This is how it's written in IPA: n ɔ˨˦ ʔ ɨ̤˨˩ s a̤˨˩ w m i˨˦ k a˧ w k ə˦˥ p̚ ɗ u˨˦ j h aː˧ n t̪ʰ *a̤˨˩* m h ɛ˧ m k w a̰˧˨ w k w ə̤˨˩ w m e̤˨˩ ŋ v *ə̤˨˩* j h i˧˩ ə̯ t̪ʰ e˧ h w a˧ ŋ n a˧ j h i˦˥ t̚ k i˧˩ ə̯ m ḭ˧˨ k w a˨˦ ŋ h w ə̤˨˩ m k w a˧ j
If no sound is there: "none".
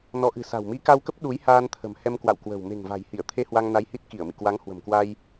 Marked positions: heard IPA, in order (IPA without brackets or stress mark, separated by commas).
ə̤˨˩, a̤˨˩